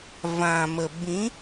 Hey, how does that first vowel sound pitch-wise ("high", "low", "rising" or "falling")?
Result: low